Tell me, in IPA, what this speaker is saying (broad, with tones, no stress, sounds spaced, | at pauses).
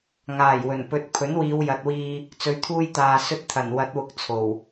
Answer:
ŋ aː˨˩ j w ɵ˨˩ n p ɵ˨ t̚ pʰ ɵ˨˥ n w iː˨˧ w j ɐ˨ t̚ w iː˧ | t͡s ɵ˨˧ ɥ t̪ʰ uː˧ j t̪ aː˨ s ɵ˧ t̚ t̪ʰ ɐ˨˩ n w ɐ˨˥ t̚ w ʊ˨ k̚ t͡sʰ o˨˩ w